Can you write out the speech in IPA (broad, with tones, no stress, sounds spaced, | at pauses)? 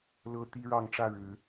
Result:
l ɤ˦ t̪ i˦ ɻ ɑ˥˨ ŋ ʈ͡ʂ ä˥˨ ɻ ɻ̩˨˦